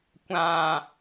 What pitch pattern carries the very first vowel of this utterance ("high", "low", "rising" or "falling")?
low